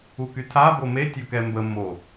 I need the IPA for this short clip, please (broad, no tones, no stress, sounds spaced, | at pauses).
u k y tʰ a b o m e tʲ o k ɛ m b ə m o